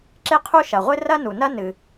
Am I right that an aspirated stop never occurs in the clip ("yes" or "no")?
no